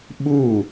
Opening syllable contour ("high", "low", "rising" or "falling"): falling